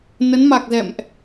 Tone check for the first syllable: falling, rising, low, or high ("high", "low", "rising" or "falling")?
rising